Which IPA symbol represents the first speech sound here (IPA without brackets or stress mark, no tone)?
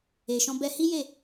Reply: e